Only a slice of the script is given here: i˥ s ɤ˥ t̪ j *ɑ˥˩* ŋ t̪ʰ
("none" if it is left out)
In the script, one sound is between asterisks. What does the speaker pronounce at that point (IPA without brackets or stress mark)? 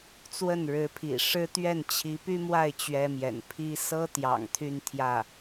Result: ɑ̰˨˩